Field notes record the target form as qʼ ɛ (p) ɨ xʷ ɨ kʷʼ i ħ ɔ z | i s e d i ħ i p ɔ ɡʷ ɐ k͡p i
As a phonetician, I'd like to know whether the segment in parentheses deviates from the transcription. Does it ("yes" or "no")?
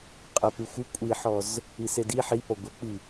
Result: no